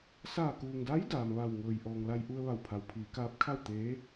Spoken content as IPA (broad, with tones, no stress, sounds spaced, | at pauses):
s aː˧˩ k uː˩ ŋ d a˧˥ j d aː˩ m ʋ a˧˩ w ŋ ɤː˩ j ʔ ɔː˩ ŋ l a˧ j ʔ u˧ ə̯ ʋ a˧˩ w pʰ a˩ w pʰ iː˩˧ k aː˧˥ p̚ kʰ a˥˨ w t̪ eː˧˥